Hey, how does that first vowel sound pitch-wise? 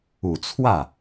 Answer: low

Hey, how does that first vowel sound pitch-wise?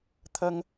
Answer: high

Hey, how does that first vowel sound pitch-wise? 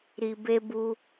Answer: low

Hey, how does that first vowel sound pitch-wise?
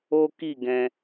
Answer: high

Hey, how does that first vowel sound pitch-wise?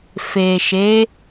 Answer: low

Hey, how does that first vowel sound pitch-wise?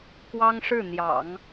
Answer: high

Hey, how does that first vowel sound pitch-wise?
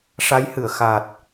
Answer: rising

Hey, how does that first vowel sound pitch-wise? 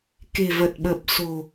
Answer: low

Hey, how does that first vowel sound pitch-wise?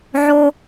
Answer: high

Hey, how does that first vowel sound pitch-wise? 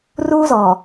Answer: high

